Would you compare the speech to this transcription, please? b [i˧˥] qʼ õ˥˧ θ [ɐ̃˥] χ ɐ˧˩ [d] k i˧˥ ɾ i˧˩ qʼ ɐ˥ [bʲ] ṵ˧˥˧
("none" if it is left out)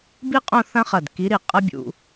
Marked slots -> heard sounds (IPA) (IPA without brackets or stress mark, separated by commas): i˥, ɐ̃˥, d, bʲ